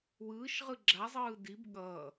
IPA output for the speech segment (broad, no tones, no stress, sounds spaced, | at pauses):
w ɯː ʃ ʁ ɯ ɡ͡ǁ a zˤ ɯː d i b ɠ ʌː